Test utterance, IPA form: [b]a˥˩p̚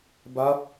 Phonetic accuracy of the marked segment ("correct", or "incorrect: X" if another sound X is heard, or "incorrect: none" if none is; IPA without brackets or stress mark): correct